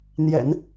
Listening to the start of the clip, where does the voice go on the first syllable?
low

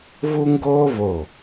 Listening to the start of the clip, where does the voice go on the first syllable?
high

